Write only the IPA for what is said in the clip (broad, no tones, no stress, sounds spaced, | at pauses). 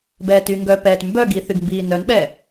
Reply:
b ɛː t y ŋ ɡ œ p ɛː t m b œ ɡ i θ y ɡ m b iː n œ n ɓ ɛ